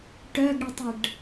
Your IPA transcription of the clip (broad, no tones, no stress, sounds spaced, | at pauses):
ʈ œ ɡ ɽ e tˤ ə ɖ